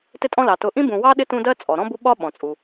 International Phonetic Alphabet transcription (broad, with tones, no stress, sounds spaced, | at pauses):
t ɪ˦ tʼ ɔ̃˦ l ɑ˩ t ʊ˨ ʔ ĩ˥ b ũ˨ w ɑ˥ ɗ ɪ˥ t ũ˦ d ɜ˥ t͡sʼ ɔ˩ ɾ ɔ̃˥ b u˦ ɓ ɒ˥ ɓ ɔ̃˩ t͡sʼ u˩